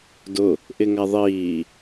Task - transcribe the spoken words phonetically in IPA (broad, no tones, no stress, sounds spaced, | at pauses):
d ʊ | ʔ ɪ ŋ a ðˤ iː